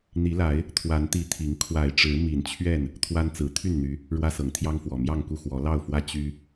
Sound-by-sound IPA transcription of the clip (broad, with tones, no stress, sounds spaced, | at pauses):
n̪ i˨˦ l a˨˦ ɪ̯ | t̪ʰ w a˨˦ n t̪ i˨˦ t̪ʰ i˨˦ ŋ kʰ w a˨˩ ɪ̯ ʈ͡ʂ ɻ̩˨˦ m i˨˩ n t͡ɕʰ ɥ ɛ˥˨ n | t̪ʰ w a˦ n t͡s ɹ̩˨˦ t̪ʰ y˥˨ n n̪ y˨˦ | ɻ w ä˦ s ɤ˨˦ ŋ t̪ʰ j ɑ˦ ŋ f w ɔ˨˩ m j ɑ˥˨ ŋ k u˥˨ x w ɔ˨˦ l ɑ˥˨ ʊ̯ f w ä˦ t͡ɕ y˦